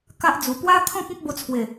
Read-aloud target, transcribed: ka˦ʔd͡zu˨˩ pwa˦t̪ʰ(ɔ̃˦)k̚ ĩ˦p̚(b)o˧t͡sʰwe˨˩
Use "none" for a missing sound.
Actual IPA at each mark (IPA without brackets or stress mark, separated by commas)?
ɔ̃˦, b